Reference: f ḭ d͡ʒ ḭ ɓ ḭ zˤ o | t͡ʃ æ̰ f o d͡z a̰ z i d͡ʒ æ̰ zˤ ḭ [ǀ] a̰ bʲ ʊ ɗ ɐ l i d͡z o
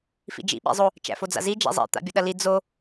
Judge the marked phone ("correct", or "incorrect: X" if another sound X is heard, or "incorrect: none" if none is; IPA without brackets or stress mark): incorrect: t̪